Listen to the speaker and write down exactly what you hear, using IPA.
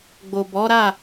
ɡ͡bo˨ bɔ˨˦ɾa˦˨

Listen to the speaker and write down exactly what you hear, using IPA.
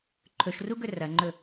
ǃʰɵʃruɡɵ rɐŋ͡ǃɵ

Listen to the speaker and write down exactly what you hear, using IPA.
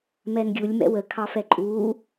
mɛnɡʲulʲ mɛ̰wə kʰɑfɛǃʼuː

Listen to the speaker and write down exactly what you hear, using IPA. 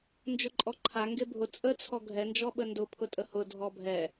nd͡ʒʊǃʼɔǃʰa ŋɡebʱʊ t͡sʼə t͡sʰɔɡʱɛ nd͡ʒɔɓəndʊ pʰʊtʼəhʊ dʱɔbʱɛ

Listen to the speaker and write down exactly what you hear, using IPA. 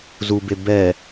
zube bɛ

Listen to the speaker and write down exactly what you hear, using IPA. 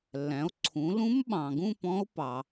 lːæ̃˨˦o̯ǀʰũ˨˦ lũ˦˥mɓɑ̃˨ɡũ˥˧ pɔ̃˦˥o̯ pɑ˨

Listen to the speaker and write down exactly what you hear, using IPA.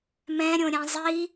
mɛ̃ɾʲõɾʲɛ̃ zˤi

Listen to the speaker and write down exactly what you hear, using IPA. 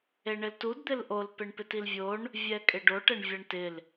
eɳɪltud d̪ɪlʔol peɳpɪtilvʲoɳ | vʲɛkʼɪɖoʈ ɛɳvʲaɳtɪl

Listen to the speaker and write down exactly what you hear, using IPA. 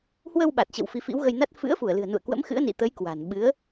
hwə˧wɓa˨˩t̚t͡ɕə̰˧˨w fi˨˦fḭ˧˥wɣə˧jna˦˥t̚ fɨ̰˧˥ə̯fu˧˩ə̯lɨ̤˨˩ə̯nṵ˧˨ə̯ kwə̰˧˥mxɨ̰˧˥ə̯nḭ˧˨t̪ə˨˦j kwa̤˨˩n ɓɨ˨˦ə̯

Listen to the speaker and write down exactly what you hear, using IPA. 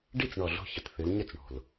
ɖi˥˨t͡sɳɔ˨˩ ɮo̤˥˨çə˩˧t θɨ˩˧l ɲə˥˨t͡sɳo̤˨˩l

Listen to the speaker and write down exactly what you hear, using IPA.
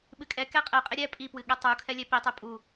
ɓɨkʼɛkɛ qʼɛqʼe ɾʲɛ pʼipwɨ ɠɛtˤukʰɛ lʲɛpitˤi pʼu

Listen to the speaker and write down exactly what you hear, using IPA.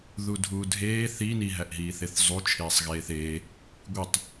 ðudʱuːdʱeː θi niɦæʔɦiːθeθ zˤut͡ʃʰeːsˤɣeːθ eː | ɡʷitˤ

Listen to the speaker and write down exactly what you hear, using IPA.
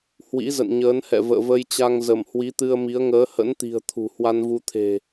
hwḭ˧˥zə̰˧˨nɲəː˨˦nhɛ̰˧˨ və̰ː˧˨və˧jt͡ɕa˧ŋzə˧˩m hwi˨˦t̪ɨ˧ə̯mi˨˦ə̯ ŋəː˨˦hə̰˧˥nt̪i̤˨˩ə̯ t̪ʰṳ˨˩ hwa˧nvu˧t̪ʰe̤˨˩

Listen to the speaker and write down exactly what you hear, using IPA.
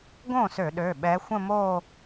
ɡõ˥˩sø˧˩˧ ɗø˩˧˩ɓɛ˨˦xʷə̃˥˧mo˥˧

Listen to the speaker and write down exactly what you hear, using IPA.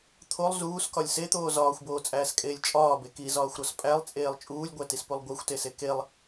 t̪ʰolˠ zuːskɒlʲ set̪oː zɒːxʷboːt͡sʼæːskʼeːlʲ t͡ʃʼɒːbe kizɒːxʷɾɒs pʼælˠt͡sʼeːlˠ t͡ʃʼuːlʲɡʷætispulˠ ɡʷæxʷtese kelˠ

